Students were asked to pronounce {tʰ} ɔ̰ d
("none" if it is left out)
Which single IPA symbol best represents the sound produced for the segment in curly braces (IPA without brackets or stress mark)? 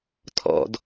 tʰ